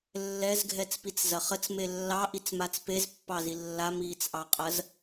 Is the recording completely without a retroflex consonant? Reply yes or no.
yes